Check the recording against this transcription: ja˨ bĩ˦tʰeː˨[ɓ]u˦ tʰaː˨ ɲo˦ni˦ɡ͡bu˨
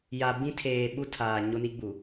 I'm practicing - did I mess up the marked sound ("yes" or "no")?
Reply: no